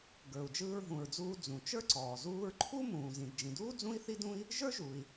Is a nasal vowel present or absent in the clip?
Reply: present